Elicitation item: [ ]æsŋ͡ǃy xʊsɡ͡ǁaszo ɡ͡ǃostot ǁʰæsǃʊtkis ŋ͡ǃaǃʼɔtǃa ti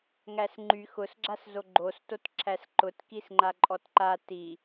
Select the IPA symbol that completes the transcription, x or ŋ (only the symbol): ŋ